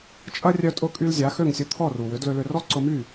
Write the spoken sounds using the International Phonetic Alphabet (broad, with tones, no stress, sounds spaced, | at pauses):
t͡ʃʼ ɐ˥ rʲ œ˧ tʼ ʊ˧ kʼ y˧ l zʲ a˩˥ x ø˥˩ ŋ sʲ ʊ˧ t̪ʰ ɔ˥˩ r u˩ w ʏ˩˥ d l ø˧ l ʏ˧ r ɔ˥ ǀ ʊ˧ m y˥˩